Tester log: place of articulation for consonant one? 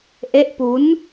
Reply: glottal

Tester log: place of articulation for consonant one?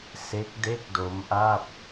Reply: alveolar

